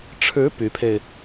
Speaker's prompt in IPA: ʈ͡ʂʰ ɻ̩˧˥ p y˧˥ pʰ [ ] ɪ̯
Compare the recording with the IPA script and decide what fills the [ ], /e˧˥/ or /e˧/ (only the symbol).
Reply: e˧